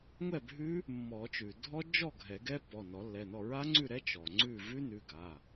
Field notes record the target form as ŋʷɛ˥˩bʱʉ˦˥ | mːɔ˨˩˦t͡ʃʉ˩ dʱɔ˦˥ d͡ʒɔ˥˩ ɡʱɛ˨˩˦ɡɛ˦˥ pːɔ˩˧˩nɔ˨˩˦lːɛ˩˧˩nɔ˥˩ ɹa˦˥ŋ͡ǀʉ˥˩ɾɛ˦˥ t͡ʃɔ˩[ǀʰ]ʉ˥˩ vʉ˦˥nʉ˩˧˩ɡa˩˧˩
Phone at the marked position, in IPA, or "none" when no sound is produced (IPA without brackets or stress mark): ŋ͡ǀ